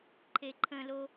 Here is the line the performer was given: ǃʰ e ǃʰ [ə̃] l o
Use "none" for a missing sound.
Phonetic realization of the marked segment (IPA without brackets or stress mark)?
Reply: ə̃